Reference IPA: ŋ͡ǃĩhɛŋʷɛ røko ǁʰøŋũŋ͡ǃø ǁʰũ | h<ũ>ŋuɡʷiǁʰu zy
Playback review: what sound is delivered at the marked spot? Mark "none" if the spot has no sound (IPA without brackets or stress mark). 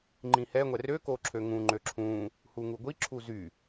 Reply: u